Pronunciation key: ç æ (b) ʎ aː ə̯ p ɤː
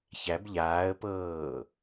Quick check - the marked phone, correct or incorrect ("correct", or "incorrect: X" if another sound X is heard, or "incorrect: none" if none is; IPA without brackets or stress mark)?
correct